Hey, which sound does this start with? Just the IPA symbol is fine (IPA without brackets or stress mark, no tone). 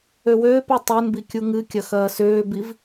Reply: ø